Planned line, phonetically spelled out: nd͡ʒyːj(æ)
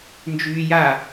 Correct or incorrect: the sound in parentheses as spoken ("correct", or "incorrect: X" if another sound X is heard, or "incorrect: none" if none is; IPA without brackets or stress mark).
incorrect: a